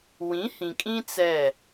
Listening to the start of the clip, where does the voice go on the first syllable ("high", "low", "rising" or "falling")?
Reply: rising